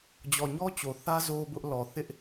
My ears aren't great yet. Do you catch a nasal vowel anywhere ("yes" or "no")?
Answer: no